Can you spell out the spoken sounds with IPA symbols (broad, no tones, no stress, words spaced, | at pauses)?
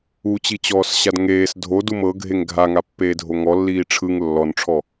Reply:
ut͡ɕit͡ɕɔːsɕad ŋeːs dʱodum ɤɡʱeŋ ɡʱaŋapːeːdʱo ŋɔlːiː ʈ͡ʂʰɯŋ lːɔnʈ͡ʂʰɔ